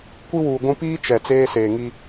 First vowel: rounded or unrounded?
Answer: unrounded